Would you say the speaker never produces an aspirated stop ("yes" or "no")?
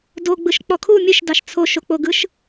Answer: no